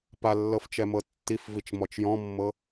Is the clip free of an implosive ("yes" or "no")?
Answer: yes